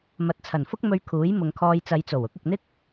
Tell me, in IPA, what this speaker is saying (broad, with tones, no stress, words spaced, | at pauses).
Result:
mɐ˨t̚t͡sʰɐ˨˩nfʊ˥k̚ mɵ˧ɥkʰuː˨˥j mʊ˨ŋkʰɔː˧j t͡sɐ˨˧jt͡so˨˩wʊ˨˥k̚ ɪ˨k̚n̪ɪ˥k̚